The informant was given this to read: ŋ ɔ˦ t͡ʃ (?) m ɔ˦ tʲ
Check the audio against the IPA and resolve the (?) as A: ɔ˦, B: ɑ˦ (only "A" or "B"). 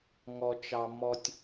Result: B